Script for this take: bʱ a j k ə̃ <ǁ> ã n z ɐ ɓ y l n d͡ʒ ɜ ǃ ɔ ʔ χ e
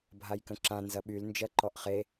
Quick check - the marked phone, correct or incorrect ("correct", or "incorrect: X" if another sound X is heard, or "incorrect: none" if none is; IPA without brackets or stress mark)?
correct